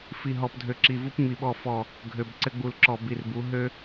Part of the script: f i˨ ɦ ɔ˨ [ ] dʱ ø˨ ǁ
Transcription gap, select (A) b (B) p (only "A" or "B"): B